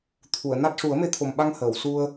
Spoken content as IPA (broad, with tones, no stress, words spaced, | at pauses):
t̪ʰu˨˩˨ə̯ na˦˥t̚ ʂu˨˩˦ə̯me˧˥t̪ʰo˨˩mɓa˧ŋ həː˨˩˨wsu˧ə̯